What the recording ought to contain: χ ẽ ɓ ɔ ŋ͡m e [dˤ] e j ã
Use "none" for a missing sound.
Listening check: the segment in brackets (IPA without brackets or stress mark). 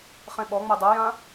dˤ